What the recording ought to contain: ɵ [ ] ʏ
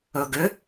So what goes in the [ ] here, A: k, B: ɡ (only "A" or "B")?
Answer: B